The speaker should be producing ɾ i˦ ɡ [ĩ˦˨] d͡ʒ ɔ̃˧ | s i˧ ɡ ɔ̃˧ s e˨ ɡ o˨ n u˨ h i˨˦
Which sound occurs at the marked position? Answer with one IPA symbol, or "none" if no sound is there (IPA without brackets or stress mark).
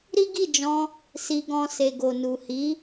i˦˨